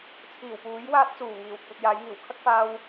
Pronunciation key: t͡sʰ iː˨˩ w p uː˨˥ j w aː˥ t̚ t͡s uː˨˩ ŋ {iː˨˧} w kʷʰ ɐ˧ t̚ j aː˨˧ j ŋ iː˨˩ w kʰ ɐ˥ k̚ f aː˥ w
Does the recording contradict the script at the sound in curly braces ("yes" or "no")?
yes